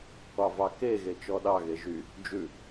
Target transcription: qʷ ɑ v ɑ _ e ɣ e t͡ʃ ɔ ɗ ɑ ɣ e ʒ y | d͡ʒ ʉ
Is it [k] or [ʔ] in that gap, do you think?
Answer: k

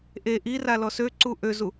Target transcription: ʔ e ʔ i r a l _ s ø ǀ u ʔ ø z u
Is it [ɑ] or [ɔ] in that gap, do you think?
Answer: ɔ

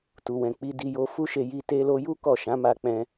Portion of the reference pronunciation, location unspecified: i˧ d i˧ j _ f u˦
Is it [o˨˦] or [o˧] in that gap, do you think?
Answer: o˧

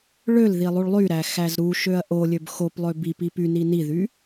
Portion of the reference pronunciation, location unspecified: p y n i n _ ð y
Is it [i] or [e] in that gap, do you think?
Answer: i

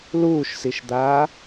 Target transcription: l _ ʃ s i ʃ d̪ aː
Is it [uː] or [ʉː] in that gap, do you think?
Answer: uː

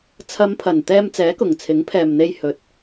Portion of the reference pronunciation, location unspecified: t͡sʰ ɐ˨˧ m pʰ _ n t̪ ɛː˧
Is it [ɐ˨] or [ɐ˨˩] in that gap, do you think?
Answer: ɐ˨˩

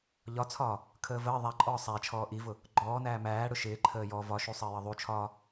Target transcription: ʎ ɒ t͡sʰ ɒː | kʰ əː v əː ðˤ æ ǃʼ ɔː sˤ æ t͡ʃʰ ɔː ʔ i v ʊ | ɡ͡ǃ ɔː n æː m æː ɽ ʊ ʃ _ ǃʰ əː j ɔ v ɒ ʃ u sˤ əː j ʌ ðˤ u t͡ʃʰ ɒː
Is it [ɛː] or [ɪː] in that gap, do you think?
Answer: ɪː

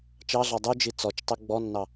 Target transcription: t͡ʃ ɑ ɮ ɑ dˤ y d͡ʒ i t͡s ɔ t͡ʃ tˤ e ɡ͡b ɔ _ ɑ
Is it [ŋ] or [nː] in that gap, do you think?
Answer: nː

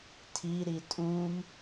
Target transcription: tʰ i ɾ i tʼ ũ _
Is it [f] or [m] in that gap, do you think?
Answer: m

